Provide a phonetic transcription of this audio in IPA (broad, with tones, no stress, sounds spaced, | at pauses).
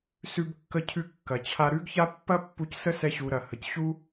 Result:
s ʉ˧ b kː ə˧ cʰ ʉ˧ kː ɐ˩ t͡ɕʰ a˧ ɾ ʉ˥ ɡ ç a˥ pː ɐ˥ pː u˧ c s ə˥ s ɛ˧ ɕ u˩ ɾ ɐ˩ h ə˩ c ɕ u˥